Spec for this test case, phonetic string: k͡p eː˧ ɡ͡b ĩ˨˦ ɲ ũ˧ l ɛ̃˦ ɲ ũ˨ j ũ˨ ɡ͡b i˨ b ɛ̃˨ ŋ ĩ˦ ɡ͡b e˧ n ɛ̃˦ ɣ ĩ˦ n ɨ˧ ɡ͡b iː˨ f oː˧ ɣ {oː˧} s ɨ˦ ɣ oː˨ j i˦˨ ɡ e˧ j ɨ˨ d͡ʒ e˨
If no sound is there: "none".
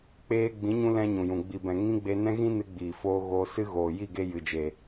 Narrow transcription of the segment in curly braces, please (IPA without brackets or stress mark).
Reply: oː˧